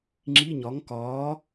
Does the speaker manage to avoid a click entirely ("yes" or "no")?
no